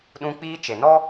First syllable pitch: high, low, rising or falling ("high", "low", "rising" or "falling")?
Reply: high